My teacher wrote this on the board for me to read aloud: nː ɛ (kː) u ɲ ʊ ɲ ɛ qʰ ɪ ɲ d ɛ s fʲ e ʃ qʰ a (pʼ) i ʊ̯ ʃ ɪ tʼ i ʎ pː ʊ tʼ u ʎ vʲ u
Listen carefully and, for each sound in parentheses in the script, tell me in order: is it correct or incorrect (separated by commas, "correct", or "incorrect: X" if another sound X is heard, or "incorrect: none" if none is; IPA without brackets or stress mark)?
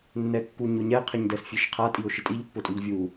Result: correct, incorrect: tʼ